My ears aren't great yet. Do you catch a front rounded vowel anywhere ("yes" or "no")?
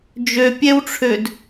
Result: yes